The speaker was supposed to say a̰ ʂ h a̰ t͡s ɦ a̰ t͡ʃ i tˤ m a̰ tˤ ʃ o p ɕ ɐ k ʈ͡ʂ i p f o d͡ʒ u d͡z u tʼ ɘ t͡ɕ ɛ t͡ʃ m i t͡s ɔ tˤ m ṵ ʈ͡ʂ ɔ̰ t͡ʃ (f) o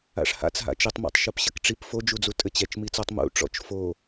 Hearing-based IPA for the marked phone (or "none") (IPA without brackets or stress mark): f